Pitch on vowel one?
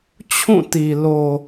falling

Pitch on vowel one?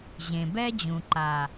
low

